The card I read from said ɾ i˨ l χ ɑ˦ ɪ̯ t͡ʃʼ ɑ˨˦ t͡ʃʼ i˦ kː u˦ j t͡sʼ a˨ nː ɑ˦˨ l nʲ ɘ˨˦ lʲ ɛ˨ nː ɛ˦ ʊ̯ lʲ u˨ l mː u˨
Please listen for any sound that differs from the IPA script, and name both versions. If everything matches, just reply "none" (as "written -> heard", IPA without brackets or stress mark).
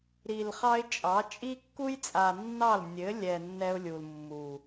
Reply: none